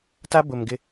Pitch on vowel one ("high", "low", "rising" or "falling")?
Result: high